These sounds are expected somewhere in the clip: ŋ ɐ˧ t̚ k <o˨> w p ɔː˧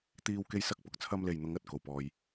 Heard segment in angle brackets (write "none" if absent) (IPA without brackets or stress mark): o˨